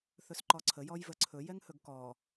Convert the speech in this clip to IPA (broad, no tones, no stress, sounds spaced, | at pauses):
θ ɵ s ǃ ɔ ǀʰ ə j ɔ j v ə ǀʰ ɵ j ɛ ŋ h ɵ ɡ k ɔ